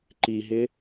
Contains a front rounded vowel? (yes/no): no